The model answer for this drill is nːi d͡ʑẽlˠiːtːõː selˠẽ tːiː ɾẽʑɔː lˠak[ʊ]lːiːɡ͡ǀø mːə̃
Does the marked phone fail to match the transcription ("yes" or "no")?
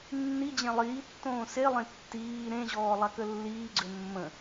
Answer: yes